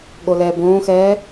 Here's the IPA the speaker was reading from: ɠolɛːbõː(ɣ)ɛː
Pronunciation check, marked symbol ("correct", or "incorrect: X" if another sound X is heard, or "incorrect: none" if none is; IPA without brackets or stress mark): incorrect: x